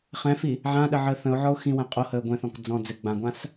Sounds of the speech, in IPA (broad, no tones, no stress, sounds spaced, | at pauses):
χ ɛ̃ f i | ʕ ã ɗ ə ʕ əː θ ə̃ ʊ̯ ʕ ɔ ʊ̯ x ĩ w ɛ̃ qʼ o h əː ɡʷ ɛ̃ θ ɔ̃ k d͡z ɔ̃ d͡z ɘ ɡ͡b ã ɡʷ ã s